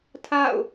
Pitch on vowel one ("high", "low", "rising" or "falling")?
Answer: falling